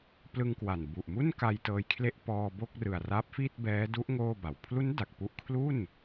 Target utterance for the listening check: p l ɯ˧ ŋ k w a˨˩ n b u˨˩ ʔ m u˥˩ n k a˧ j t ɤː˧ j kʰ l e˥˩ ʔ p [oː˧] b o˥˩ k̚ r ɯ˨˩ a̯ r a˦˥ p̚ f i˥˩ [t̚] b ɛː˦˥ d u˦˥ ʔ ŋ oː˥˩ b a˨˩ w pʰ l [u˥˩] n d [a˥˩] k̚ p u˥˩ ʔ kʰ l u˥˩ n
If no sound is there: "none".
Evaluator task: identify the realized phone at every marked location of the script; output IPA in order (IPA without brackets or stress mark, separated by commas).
ɔː˧, t̚, u˦˥, a˨˩